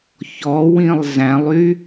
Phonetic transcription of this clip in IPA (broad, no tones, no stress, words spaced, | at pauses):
çɔwĩlˠ zæ̃lˠy